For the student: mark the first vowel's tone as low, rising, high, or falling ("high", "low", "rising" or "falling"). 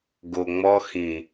low